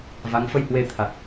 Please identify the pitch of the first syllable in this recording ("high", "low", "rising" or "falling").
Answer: rising